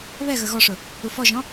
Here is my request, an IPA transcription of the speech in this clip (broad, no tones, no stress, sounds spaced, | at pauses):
β ɛ ɣ ə ɣ ɔ ʂ ʊ | u f ɔ ʒ ɔ̃